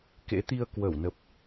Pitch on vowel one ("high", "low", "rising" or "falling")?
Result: rising